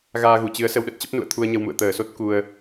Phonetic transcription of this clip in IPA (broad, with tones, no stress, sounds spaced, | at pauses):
ɣ aː˧ ɣ u˧˩ t͡ɕ ɨ˨˦ ə̯ s ə˧ w ɗ ə˦˥ t̚ t͡ɕ ə˦˥ p̚ n ṵ˧˨ ə̯ t̪ʰ u˧ ə̯ ɲ ə˧ w m ṵ˧˨ ə̯ t̪ əː˧˩ s o˦˥ t̚ k u˧ ə̯